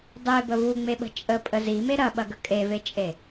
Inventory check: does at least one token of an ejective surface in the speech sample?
yes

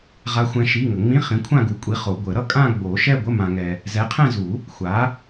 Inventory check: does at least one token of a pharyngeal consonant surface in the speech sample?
no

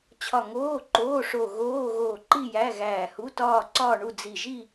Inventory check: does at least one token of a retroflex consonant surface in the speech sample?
yes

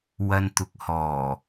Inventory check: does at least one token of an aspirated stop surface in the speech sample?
no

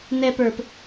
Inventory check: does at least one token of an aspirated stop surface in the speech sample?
no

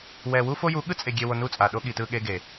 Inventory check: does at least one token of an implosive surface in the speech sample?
yes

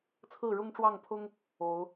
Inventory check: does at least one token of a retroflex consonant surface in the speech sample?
yes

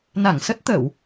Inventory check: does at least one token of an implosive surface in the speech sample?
no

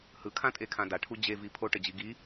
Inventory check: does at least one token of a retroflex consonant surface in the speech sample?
yes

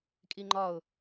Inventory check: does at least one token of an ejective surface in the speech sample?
yes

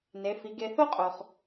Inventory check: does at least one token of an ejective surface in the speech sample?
yes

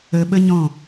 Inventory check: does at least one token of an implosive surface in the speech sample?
yes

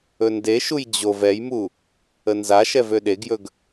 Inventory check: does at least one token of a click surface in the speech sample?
no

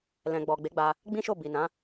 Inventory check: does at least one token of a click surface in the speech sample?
no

